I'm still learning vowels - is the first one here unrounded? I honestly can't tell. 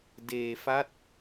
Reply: yes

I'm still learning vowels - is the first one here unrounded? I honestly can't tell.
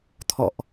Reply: no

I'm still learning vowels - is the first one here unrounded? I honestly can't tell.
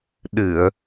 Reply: yes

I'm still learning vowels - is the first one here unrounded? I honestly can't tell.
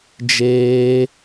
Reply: yes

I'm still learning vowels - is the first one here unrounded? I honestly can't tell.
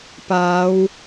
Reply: yes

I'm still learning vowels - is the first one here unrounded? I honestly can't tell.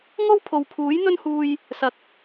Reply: no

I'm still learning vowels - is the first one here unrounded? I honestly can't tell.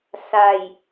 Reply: yes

